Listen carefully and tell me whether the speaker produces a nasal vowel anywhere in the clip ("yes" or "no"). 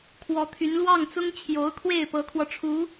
no